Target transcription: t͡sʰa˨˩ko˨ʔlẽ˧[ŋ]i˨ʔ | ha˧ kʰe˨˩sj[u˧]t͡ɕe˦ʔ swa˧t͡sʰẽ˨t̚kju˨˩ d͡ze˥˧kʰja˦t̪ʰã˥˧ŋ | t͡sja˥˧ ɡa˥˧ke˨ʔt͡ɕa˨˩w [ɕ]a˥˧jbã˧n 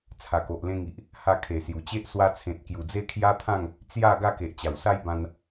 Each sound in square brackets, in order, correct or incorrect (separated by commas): correct, incorrect, incorrect